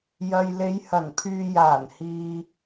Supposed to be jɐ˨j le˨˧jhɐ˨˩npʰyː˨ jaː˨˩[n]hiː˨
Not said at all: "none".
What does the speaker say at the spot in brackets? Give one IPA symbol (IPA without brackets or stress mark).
n